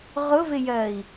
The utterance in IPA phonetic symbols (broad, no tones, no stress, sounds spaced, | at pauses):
ʁ ʊ v ɪ j ɜ i̯